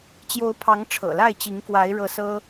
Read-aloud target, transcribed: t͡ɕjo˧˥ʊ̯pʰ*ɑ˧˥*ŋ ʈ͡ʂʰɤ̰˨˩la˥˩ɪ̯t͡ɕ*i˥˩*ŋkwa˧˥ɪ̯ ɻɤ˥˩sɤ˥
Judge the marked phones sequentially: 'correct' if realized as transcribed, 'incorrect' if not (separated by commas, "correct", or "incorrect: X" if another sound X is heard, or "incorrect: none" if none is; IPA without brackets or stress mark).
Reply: correct, incorrect: i˧˥